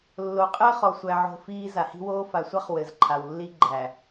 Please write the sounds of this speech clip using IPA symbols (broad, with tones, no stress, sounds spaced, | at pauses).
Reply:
lː o˨ qʼ ɘː˦ χ ɔ˨ sʷ æ˨ ʕ o̤˦ f iː˦ z a˨ h i̤˦ w oː˦ f a˨ sʷ a˦ χ w ɘ˨ z ǃʰ a˨ w lː i˦ ɡ͡ǃ æ˨